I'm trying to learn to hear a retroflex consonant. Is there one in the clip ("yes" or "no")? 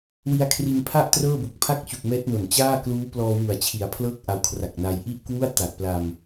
no